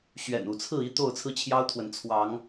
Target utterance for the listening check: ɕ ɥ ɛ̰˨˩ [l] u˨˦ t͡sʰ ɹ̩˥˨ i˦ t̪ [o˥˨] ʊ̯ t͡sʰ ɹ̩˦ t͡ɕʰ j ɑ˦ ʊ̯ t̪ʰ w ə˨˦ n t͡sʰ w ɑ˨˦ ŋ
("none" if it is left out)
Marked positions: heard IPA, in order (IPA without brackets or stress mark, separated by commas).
n, o˥˨